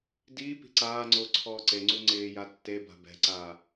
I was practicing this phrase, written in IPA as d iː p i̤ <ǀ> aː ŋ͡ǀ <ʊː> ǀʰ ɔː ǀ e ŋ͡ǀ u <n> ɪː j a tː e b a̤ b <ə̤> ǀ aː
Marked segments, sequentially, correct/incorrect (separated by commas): correct, correct, incorrect, incorrect